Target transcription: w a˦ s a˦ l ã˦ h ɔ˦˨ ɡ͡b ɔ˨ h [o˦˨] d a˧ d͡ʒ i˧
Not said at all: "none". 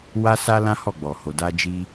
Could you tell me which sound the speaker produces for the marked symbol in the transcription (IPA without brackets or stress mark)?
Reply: o˨